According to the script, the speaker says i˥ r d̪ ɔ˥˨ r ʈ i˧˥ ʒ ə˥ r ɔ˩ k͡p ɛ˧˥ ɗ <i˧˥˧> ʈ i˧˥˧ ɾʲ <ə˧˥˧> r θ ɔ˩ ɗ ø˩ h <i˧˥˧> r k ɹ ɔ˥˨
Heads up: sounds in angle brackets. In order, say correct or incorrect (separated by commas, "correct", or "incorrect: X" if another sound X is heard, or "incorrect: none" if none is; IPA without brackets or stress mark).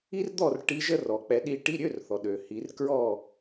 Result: incorrect: i˥, incorrect: ø˧˥˧, incorrect: i˩˧